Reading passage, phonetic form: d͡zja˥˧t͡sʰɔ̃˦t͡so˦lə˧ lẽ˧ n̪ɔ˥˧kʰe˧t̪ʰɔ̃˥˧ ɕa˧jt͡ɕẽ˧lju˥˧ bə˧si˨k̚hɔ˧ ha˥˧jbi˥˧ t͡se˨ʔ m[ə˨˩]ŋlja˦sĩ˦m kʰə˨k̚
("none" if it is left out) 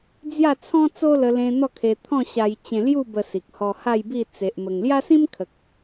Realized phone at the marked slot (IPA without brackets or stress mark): ə˨˩